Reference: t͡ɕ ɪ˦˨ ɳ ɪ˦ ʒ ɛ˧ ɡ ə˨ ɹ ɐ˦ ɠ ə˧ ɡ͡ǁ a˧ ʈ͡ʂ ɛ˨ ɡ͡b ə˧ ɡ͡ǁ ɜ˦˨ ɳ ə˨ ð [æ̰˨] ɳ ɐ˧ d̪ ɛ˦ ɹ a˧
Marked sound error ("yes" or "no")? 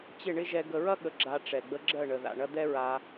yes